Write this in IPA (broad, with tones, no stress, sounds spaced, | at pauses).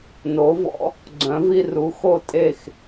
n oː˩˥ v ɔ̰˩˥ | ɡ͡ǀ œ̃˩˥ v i˧ r u˩˥ x o˥˩ tʼ e˥˩ x